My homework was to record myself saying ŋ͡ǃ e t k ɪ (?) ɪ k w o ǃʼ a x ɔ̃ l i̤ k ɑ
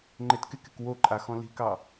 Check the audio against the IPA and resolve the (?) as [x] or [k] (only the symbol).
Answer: k